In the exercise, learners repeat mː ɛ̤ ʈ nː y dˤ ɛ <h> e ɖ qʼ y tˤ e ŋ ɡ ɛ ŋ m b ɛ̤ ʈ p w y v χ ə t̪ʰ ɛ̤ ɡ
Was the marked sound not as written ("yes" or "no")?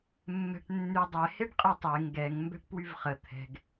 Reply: no